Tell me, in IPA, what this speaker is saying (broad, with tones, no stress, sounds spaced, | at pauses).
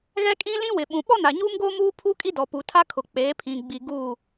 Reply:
ɣ ɛ˦ kʼ ĩ˦ l ĩ˦ w ɪ˨ ɓ ũ˨ ɓ ɔ˦ n a˨ ɲ uː˦ m ɡ oː˦ m uː˦ pʰ u˦ kʼ i˦ d ɔ˨ p uː˨ tʰ a˦ kʰ ʊ˨ k͡p eː˨˦ pʰ ĩ˨ ɡ͡b i˨ ɡ uː˦˨